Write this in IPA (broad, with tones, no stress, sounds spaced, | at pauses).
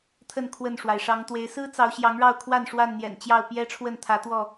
t̪ʰ ə˥˨ n kʰ w ə˥˨ n ʂ w a˩ ɪ̯ ʂ ɑ˨˦ ŋ t̪ w e˨˦ ɪ̯ s ɹ̩˦ t͡s ɑ˨˦ ʊ̯ ɕ j ɑ˨˦ ŋ ɻ ɑ˥˨ ʊ̯ kʰ w a˥˨ n ʂ w a˥˨ n n̪ j ɛ̰˨˩ n t͡ɕ j ɑ˥˨ ʊ̯ p j ɛ˦ ʈ͡ʂʰ w ə˥˨ n t̪ʰ ä˨˦ t̪ w ɔ˥˨